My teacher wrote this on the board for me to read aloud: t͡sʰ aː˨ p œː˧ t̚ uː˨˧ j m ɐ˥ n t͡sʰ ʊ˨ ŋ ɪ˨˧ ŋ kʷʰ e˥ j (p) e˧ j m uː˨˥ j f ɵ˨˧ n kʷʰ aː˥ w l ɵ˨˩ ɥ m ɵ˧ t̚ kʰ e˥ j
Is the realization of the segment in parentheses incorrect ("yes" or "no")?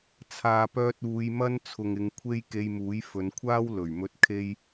yes